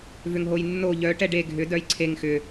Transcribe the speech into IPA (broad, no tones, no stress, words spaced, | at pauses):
vʏŋɦojnːo ʎœʈɛ ɖe ɡʱʏ dœjǀʰeŋ xʏ